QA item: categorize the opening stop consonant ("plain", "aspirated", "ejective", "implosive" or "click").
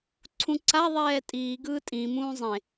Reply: click